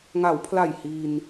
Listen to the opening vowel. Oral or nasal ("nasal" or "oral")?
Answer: oral